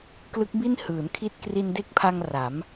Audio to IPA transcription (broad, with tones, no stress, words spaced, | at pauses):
klɯ˦˥k̚bi˥˩n hɯː˩˦nkʰi˥˩t̚ kri˧nde˦˥k̚pʰa˧ŋ ra˩˦m